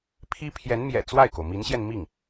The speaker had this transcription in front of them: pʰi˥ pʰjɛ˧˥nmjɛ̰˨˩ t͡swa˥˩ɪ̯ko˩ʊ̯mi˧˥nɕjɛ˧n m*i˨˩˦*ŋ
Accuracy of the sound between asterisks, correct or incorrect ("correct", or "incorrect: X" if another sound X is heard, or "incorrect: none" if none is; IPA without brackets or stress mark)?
incorrect: i˥˩